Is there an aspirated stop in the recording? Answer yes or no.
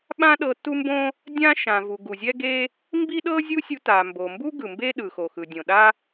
no